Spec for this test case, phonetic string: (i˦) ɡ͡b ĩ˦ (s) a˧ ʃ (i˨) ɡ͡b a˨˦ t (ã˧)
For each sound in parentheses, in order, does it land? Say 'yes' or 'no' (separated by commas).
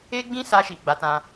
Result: no, yes, yes, yes